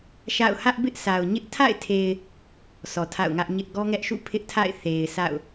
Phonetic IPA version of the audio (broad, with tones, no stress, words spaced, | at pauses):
ʃa̰˦˨ʊ̯ hä˦ʔ bɪ˦ʔ sʰa˨ʊ̯ ɲɪ˦ʔ tʰa̰˦˨ɪ̯tʰe˨ɪ̯ | sʰɔ˨tʰa̰˦˨ʊ̯ŋä˦ʔ ɲɪ˦ʔ ɡɔ˦ŋɛ˦ʔʃṵ˦˨ pʰɪ˦ʔtʰa̰˦˨ɪ̯ θe˨ɪ̯sʰa̰˦˨ʊ̯